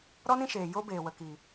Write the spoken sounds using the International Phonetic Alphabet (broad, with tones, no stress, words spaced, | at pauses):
ɾɔ˦nĩ˧ʃeː˨ jo˦beː˨wə˨ ki˨